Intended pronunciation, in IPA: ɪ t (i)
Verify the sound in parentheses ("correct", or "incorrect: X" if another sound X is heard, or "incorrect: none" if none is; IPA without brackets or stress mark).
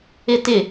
incorrect: ɪ